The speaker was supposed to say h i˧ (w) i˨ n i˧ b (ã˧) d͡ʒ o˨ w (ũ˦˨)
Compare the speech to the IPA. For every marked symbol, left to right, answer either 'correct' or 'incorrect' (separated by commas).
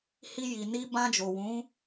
incorrect, correct, incorrect